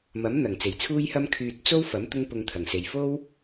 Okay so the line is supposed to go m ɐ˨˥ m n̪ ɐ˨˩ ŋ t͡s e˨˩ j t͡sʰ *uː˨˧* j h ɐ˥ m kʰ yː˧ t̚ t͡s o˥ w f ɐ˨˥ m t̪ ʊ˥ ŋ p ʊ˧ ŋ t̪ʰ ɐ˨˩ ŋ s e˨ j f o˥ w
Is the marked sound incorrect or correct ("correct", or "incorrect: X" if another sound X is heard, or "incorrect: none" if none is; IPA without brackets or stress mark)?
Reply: incorrect: uː˥